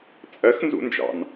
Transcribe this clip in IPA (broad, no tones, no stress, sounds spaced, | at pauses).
t͡sʼ ɜ x n z ṵ n d͡ʒ ɑ̰ n